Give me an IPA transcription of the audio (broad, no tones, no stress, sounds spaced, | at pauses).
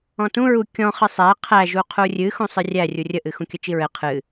ɔ̃ t ũ ɹ u kʲ ɔ̃ χ ɨ sˤ æ qʰ æ ʒ u qʰ u rʲ ɨ x ũ sˤ ɨ rʲ æ rʲ u rʲ ə ʔ ɨ x ũ kʲ ə t͡ʃ i ɹ ɘ qʰ ɨ